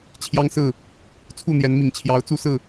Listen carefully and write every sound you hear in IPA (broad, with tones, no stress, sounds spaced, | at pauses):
t͡ɕʰ j ɑ˦ ŋ s ɹ̩˥˨ | t͡sʰ u˥˨ n̪ j ɛ˨˦ n m i˨˩ ŋ t͡ɕʰ j ɑ˨˦ ʊ̯ t͡s u˦ s ɹ̩˥˨